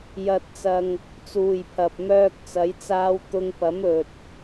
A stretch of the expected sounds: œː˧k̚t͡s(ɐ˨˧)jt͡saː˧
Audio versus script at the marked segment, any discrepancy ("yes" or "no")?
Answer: no